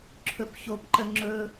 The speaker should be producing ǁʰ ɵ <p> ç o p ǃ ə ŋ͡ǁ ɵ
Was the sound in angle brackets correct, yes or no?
yes